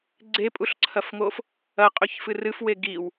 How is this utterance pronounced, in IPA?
ɡ͡ǀ e pʼ u ɬ ǀʰ ɐ f ŋ o f | ɐ qʼ ɵ ç f ɨ r ɨ f w e ɡ i w

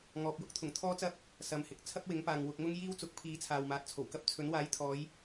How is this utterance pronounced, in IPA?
ŋ ɔː˨ p̚ j ʊ˥ k̚ t̪ʰ ʊ˨˩ ŋ t̪ʰ ɔː˥ t͡s ɐ˥ p̚ | s ɐ˨ m h ɪ˨ k̚ t͡sʰ ɐ˥ p̚ w ɪ˨˥ ŋ p aː˨ ŋ w ʊ˧ k̚ ŋ ʊ˥ ŋ j iː˥ w t͡s ʊ˨˥ k̚ pʰ iː˨˧ t͡sʰ aː˨ w m aː˨˥ t̚ t͡sʰ o˨˩ w k ɐ˥ p̚ t͡sʰ ɵ˨˥ n w aː˨˥ j t̪ʰ ɔː˨˧ j

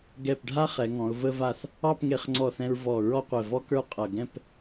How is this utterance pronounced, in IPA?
ɡ ɛ˧˩ p ɖʱ a˥ χ ɛ˩˧ ŋ ɔ̃˩˧ ʊ̯ v ə˧ v a˧˩ θ | ɑ˥˧ p ŋ e˧ χ ŋ͡ǀ ɔ˧˩ θ ɛ̃˧ ɹ v ɔ˧˩ ɹ ɔ˥ qʷ ɛ˧˩ v ɔ˥ k ə˞˥˧ qʼ ʌ˧˩ ɡ ɛ̃˥˧ p

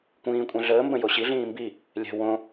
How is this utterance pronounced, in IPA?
kʷ ĩː kʷʼ ɛ̃ ɮ əː m b ə̃ j o ɕ i ɮ ĩː m b i | lʲ ɛ̤ w õ

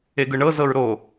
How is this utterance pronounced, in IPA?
e ɡ ɯ ɳ ɤ z ɤ ɹ ɾ o

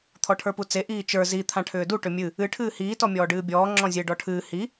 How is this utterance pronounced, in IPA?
t̪ʰ ɔ ʈʰ ə˞ p u t͡s e ʔ iː t͡ʃ ə˞ z i t̪ʰ ã ʈʰ ʏː d u ʈ ʏ mʲ ɨ | ɨ ʈʰ ɨː h iː t ɔ mʲ ɔː ɖ ɨː bʲ ɔː ŋ͡ǁ ɔ̃ zʲ e ɖ ɔ ʈʰ ɨː h i

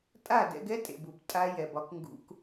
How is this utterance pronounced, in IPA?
tʼ a˦˨ d ɛ̰˧ ɡ ɛ˦ tʼ ḛ˨ b u˨ b tʼ a˧ j ɛ˨ b ɒ˧ k ŋ ɡ ṵ˧ k

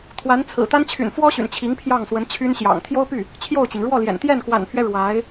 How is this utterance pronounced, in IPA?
t̪ʰ w a˧˥ n t͡sʰ ɹ̩˨˩ t̪ a˥ n t͡ɕʰ y̰˨˩ n f w ɔ˥ ɕ y̰˨˩ n t͡ɕʰ i˧˥ ŋ pʰ j ɑ˥˩ ŋ s w ə˧˥ n t͡ɕʰ y˥ n ɕ j ɑ̰˨˩ ŋ t̪ʰ j o˥ ʊ̯ p y˥˩ | t͡ɕʰ j o˥˩ ʊ̯ t͡ɕ i˩ ŋ ɻ w ɔ˥˩ l j ɛ̰˨˩ n t̪ j ɛ˥˩ n k w a̰˨˩ n pʰ ɥ ɛ˦ ɻ w a˧˥ ɪ̯

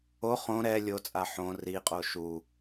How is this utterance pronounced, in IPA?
o χ õ ɾ ɛ lʲ o t͡sʼ a ħ õ r i qʼ o ʃ u

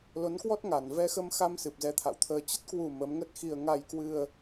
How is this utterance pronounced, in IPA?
l o˨˦ n k w ɔ˦˥ t̚ ŋ a˨˩ n v ɛ˧ x ə˧ m x a˧ m s ɨ˨˩ p̚ z ɛ˧ t̪ʰ a̰˧˨ w t̪ʰ əː˧ t͡ɕ ə˦˥ t̚ k w u˨˩ m ə˨˦ m ŋ ə˦˥ t̚ x i˧ ə̯ ŋ a˧ j k w ɨ˧ ə̯

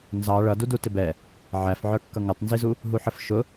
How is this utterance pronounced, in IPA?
n z ɑ ɭ ʌ d u d u t ɪ b ɛ | ʕ æ f ʕ ə˞ kː ʌ ŋ ə tˤ n z i z u | ɦ u ħ ə f ʃ ʊ

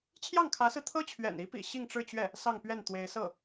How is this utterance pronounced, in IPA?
t͡ɕʰ j ɑ˥˩ ŋ kʰ ä˧˥ s ɹ̩˧ t̪ʰ ɤ˥ t͡ɕʰ ɥ ɛ̰˨˩ n i˧˥ p ḭ˨˩ ɕ i˥˧ ŋ ʈ͡ʂ ɻ̩˥˧ t͡ɕ ɥ ɛ˥˩ | s ɑ˥˧ ŋ p ɥ ɛ˥˩ n t̪ w e˧˥ ɪ̯ s ɤ˥˩

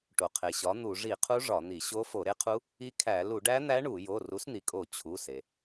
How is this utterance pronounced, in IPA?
ʈ o˩ qʰ e˩ ɕ ɒ˩˥ n̪ u˧˩˧ ʐ i˧˩˧ qʰ u˧˥ ʐ ɒ˧˩˧ n̪ i˧˩˧ ɕ o˧˥ f o˧˩˧ ɾ e˧˥ qʰ u˧˥ | i˧˥ kʰ æ˧˩˧ l u˧˩˧ ɖ æ˧˥ n̪ æ˧˥ ɳ u˧˩˧ j o˩˧˩ r u˩˥ s n̪ i˩ kʼ o˧˩˧ t͡ɕʰ u˩˧˩ s e˩

